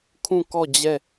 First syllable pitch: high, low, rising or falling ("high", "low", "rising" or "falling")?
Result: falling